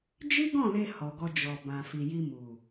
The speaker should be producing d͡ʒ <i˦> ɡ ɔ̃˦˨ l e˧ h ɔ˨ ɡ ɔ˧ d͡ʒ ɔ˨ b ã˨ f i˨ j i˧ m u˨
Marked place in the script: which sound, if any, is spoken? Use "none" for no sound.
i˦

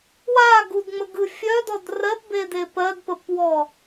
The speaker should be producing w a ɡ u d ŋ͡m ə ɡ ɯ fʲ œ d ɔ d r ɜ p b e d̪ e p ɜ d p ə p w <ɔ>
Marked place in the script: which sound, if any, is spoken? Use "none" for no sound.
ɔ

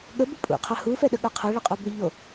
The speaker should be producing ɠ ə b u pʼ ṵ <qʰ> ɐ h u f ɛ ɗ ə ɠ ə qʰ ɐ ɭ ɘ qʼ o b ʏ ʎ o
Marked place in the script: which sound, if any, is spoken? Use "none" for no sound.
qʰ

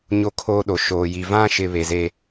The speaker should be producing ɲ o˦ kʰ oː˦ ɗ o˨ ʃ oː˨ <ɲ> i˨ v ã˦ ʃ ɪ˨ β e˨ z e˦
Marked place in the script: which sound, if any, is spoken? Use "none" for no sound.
j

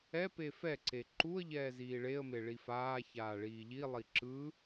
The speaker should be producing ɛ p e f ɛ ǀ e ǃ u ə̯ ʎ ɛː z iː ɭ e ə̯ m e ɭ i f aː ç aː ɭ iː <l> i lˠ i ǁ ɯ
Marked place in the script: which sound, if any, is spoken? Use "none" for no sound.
ʎ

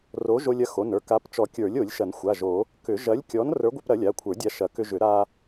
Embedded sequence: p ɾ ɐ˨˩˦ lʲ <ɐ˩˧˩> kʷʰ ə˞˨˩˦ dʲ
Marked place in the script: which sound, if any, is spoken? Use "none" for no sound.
a˩˧˩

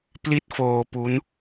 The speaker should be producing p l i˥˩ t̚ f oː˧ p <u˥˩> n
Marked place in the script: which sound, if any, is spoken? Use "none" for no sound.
u˦˥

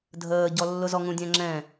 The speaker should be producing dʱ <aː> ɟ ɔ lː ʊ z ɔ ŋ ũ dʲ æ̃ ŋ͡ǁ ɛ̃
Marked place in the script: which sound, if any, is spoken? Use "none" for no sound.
əː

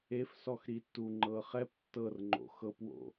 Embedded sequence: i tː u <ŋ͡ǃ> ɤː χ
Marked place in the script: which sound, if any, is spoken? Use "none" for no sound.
ŋ͡ǃ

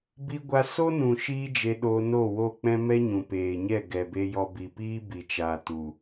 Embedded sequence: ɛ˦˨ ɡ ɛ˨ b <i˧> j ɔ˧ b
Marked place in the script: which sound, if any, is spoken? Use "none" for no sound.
e˧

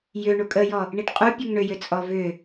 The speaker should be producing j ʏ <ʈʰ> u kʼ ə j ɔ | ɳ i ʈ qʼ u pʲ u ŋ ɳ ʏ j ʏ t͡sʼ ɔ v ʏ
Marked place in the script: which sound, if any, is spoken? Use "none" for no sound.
ɳ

